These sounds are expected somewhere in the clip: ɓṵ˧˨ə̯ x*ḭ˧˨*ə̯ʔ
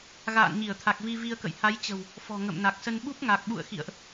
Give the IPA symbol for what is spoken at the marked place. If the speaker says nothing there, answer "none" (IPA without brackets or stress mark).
ḭ˧˨